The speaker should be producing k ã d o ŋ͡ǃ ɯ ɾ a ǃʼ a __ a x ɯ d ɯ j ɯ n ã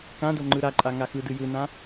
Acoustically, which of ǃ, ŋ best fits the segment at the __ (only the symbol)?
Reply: ŋ